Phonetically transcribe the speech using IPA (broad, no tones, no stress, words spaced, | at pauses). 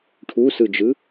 ʈʰusɯd͡ʒɯ